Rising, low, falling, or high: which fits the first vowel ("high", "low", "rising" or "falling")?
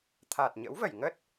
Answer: low